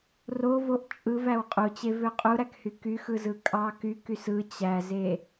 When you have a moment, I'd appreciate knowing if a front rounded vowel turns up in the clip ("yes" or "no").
yes